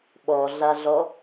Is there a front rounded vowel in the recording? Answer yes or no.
no